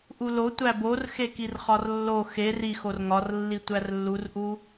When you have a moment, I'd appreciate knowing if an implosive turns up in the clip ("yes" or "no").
no